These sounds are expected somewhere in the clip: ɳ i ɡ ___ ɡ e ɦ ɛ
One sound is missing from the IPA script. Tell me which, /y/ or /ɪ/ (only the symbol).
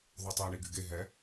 y